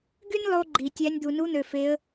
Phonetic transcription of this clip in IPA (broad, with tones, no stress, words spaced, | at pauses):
ɡy˥nʲlˠo˧ɡ͡ǃi˩ tʲæ˧˥nʲ d̪u˩nu˧˥n̪ø˩fe˩˧ə̯